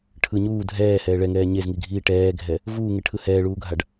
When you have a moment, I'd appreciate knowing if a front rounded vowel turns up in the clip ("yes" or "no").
no